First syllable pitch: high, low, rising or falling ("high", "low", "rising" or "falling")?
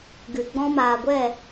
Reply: low